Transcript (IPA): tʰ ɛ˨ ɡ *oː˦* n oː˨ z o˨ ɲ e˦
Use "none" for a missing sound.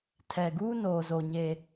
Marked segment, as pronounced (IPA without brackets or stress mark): uː˦